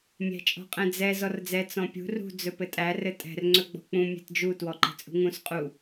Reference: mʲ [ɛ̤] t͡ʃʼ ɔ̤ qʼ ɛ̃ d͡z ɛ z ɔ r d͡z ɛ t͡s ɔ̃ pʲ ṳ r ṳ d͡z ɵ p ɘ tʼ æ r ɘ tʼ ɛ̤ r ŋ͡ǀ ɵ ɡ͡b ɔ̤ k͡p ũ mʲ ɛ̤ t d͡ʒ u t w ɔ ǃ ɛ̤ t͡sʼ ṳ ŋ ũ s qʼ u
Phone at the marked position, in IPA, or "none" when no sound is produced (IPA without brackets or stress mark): æ̤